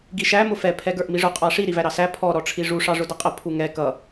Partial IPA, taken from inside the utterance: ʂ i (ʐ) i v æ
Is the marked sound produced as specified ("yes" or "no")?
no